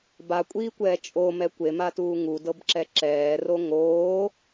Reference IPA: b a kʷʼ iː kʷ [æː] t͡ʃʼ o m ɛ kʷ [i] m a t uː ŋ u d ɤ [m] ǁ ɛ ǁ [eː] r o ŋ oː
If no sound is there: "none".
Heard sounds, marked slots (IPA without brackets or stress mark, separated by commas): ɛː, e, b, ɛː